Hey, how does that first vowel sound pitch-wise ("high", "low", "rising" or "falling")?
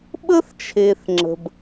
high